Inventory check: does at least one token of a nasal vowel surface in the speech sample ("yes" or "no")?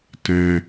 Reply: yes